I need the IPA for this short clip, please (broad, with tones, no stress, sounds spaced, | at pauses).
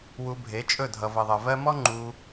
w u˧ bʱ e˨˦ t͡ʃʼ ɵ˦˨ dʱ ʌ˨ v ʌ˨ ðˤ ʌ˨ v ɜ˧ m ɔ˦ ŋ͡ǃ u˧